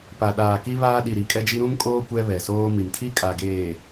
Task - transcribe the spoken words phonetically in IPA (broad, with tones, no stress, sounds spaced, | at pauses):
p a˨ ɗ aː˨ k i˦ β aː˦ ɗ i˨ ɾ i˨ kʼ ɛ˦ d͡ʒ i˦ ɾ ũ˦ m kʼ oː˦ kʷ ɛ˦ β ɛ˨ s oː˦ m i˨ m tʰ i˦ kʼ a˨ ɡ eː˨